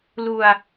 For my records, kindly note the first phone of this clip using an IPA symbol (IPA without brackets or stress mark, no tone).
l